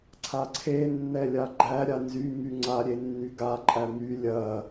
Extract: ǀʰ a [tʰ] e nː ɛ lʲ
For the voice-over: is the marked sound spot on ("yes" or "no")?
no